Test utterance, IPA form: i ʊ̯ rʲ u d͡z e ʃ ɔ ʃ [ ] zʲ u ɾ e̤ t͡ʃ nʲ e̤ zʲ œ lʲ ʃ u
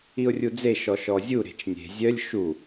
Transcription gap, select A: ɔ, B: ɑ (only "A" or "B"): A